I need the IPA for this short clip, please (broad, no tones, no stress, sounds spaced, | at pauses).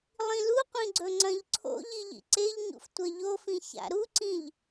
lˠ ĩ l u qʷ ĩ ɡ͡ǀ ɵ ŋ͡ǀ ɐ̃ ʎ ǀʰ o̰ ʎ i ʎ ḭ ǀ e ʎ ɲ ṵ f tʷ ɐ ʎ o f ĩ ç a̰ ɾ u ǀ ĩ ʎ